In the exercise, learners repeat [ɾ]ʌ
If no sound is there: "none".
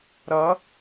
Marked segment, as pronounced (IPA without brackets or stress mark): ɾ